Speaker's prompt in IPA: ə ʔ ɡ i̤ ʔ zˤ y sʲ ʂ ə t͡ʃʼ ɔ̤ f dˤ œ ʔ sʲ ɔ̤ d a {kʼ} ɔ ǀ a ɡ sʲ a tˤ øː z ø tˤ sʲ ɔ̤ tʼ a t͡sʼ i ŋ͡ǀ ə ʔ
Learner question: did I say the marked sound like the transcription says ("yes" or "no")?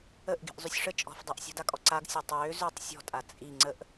yes